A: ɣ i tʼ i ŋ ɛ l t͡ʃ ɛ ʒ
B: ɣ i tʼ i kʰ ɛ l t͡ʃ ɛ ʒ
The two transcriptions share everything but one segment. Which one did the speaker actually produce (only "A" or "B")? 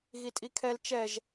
B